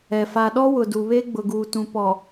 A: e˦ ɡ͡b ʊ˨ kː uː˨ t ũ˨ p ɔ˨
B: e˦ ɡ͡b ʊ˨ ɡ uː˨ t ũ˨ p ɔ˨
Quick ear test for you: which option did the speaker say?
B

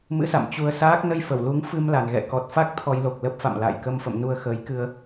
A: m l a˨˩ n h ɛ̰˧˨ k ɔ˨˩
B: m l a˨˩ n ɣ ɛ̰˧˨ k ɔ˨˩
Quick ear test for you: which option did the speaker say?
B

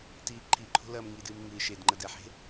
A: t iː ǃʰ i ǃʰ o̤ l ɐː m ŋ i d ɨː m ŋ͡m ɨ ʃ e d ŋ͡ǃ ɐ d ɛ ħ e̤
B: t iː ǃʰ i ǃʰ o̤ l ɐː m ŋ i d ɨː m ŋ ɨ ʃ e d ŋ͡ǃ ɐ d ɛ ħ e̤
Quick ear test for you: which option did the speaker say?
B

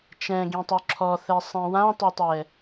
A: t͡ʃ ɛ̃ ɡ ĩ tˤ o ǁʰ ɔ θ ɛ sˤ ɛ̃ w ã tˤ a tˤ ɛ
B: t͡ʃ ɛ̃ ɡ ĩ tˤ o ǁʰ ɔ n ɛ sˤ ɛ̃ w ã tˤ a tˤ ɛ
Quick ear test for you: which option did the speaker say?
A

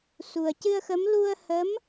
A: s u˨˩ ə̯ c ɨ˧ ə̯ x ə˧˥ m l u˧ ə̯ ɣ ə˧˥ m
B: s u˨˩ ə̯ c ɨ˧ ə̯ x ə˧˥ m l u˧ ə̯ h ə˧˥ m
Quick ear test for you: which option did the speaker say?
B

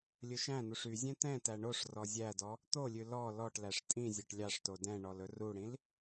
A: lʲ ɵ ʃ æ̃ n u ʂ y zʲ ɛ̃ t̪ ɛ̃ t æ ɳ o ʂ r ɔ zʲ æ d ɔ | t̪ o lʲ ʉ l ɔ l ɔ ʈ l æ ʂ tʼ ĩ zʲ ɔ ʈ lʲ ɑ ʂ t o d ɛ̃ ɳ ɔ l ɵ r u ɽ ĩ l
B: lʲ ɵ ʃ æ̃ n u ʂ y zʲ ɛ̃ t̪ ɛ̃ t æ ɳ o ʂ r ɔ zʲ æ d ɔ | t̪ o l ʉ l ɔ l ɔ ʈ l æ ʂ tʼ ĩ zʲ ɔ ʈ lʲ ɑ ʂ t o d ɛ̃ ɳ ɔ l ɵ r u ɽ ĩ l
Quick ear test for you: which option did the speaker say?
A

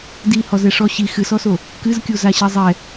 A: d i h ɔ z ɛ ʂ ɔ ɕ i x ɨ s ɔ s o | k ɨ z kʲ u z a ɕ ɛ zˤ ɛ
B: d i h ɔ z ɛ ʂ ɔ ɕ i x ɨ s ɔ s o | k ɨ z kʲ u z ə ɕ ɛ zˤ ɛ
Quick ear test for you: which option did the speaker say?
A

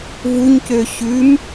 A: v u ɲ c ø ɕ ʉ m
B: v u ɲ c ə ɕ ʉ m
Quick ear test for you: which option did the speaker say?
A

